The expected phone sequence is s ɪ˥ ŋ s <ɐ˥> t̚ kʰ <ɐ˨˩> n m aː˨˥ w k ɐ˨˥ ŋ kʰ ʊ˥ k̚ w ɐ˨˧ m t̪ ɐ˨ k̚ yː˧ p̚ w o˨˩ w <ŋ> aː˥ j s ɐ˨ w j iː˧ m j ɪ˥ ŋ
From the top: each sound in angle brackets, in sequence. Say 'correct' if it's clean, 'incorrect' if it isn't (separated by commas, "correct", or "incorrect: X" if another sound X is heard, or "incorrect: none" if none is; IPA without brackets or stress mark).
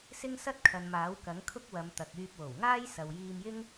correct, incorrect: ɐ˨, correct